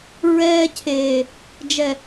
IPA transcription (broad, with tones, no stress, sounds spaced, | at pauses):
ɹ ɛː˦ cʰ eː˨ | d͡ʒ ɛ˨